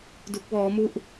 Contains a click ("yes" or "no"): no